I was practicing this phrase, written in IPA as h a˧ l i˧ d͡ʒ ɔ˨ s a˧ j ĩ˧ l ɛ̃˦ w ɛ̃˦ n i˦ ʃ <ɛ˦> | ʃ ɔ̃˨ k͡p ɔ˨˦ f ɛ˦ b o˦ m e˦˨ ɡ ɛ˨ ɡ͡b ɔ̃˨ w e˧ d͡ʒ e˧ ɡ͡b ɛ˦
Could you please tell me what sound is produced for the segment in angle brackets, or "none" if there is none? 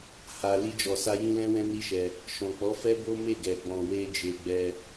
ɛ˧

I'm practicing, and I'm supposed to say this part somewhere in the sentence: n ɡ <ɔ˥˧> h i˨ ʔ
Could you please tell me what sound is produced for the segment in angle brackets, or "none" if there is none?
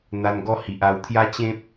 ɔ˥˧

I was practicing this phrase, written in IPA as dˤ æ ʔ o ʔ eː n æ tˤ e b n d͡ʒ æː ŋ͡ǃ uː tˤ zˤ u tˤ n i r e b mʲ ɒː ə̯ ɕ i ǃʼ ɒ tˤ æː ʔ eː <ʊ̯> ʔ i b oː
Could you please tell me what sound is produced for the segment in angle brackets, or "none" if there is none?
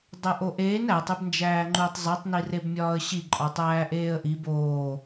ə̯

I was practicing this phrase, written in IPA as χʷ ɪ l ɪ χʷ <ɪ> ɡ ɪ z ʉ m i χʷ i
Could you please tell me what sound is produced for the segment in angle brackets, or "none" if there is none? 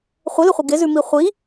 ə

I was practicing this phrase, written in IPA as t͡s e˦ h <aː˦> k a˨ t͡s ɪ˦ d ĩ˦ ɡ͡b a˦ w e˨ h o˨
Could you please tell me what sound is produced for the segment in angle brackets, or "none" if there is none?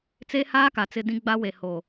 aː˦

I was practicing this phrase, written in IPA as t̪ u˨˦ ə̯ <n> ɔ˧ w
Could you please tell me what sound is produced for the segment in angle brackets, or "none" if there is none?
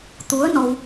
n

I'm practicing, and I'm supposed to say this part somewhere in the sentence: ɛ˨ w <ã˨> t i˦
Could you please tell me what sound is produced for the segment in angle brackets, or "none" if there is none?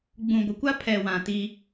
ã˨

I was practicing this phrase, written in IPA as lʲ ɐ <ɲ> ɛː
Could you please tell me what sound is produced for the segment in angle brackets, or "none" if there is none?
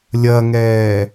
ŋ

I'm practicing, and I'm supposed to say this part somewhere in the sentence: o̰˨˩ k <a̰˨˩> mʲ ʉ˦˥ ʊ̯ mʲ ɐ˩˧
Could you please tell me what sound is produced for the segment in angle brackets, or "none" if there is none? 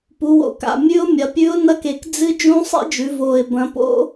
a̰˨˩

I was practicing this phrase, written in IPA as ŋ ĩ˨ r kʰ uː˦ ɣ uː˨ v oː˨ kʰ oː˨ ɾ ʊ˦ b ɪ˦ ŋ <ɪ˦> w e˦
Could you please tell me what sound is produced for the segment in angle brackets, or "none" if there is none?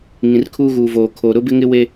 ɪ˦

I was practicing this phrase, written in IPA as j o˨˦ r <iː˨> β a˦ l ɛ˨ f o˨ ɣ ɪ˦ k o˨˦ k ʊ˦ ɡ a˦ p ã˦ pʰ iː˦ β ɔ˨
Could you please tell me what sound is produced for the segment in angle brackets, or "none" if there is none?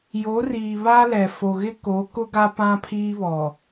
iː˨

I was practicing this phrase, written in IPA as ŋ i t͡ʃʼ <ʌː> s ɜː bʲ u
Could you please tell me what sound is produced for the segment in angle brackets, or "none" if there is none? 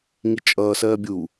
ʌː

